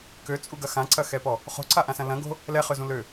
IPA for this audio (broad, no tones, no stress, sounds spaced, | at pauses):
k ø t͡sʼ u ɡ ɐ x ã ǀ ɐ x ɛ p ɔ | χ o̤ ǀ a ʔ ã s ɐ̃ l ɐ̃ ɡ o̤ | l ɛ χ ø z ũ l ø